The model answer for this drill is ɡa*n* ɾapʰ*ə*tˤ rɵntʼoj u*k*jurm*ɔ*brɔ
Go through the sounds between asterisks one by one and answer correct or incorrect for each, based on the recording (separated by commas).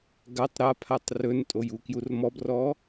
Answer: incorrect, incorrect, correct, correct